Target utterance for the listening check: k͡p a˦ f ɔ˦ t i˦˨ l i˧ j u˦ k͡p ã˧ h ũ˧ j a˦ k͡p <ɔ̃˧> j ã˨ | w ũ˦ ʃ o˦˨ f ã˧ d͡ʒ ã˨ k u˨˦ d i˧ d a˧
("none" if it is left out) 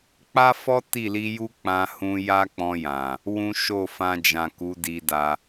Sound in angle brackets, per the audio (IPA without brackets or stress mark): ɔ̃˧